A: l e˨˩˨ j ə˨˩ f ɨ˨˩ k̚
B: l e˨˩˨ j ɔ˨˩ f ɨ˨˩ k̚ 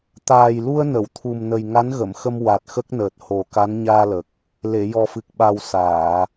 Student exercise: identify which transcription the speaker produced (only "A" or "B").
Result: B